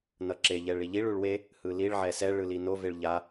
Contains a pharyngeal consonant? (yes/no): yes